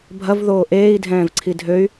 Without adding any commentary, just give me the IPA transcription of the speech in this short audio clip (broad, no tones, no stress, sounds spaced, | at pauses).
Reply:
bʱ ɐ v ð oː ʔ eː i̯ dʱ ɛ̃ː v ǀʰ i dʱ ø y̯